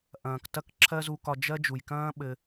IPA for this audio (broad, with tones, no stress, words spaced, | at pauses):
ʔɐ̃ː˩ktɐ˥k ǁʰɜ˥ zu˧kɒ˧ d͡ʒɜ˥ d͡ʒu˩jkɐ̃ː˥ ɓɘ˧